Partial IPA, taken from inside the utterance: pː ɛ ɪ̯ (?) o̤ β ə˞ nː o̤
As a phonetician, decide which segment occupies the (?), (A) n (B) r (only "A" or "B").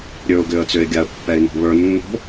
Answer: A